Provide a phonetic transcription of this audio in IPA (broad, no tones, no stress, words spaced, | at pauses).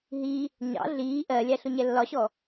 ɦi | ɲɑ̰ ɮiː ʔɜlʲæ ɬʊɲɛlːɒɕɔ